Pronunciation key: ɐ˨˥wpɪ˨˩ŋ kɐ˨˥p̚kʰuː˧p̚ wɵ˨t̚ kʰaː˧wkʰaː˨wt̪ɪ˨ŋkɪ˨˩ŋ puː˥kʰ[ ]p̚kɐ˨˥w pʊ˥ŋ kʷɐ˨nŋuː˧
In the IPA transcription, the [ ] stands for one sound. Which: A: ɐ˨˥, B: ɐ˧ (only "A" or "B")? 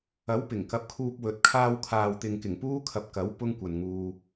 B